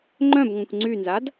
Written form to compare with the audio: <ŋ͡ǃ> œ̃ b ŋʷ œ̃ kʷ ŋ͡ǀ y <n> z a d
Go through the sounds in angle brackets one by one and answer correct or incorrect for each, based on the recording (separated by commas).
correct, correct